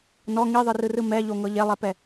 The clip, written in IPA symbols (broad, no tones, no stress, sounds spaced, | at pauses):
n ɔ ŋ i ðˤ ɯ r ɯ r ɯ m ɛ ʎ o ŋ ɤ ʎ e lˠ ɛ p ɛ